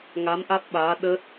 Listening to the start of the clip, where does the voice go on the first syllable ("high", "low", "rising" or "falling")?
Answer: rising